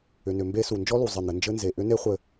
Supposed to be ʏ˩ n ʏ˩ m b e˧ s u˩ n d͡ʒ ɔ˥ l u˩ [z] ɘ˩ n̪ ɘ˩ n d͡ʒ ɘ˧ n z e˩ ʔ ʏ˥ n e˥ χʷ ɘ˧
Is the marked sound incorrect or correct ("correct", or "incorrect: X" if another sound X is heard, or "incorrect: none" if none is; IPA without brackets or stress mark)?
incorrect: zˤ